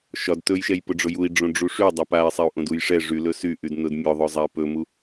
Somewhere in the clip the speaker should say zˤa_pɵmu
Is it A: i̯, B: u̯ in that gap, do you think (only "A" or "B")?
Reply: A